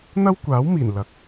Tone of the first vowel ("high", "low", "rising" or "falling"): high